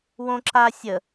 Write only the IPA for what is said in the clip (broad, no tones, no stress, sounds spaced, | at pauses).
w õ ǁ a sʲ ə